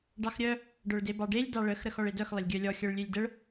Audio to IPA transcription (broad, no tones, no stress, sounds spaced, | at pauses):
ɖ ɑ x ɾʲ œ | ɖ œ ɭ d e b ɑ ɖ e lʲ d ɑ ɭ ə x ɾ ə x ɔ ɭ e d œ x lˠ ə lʲ ɡʲ œ lʲ ɔ xʲ œ ɭ lʲ ø lʲ d ə ɭ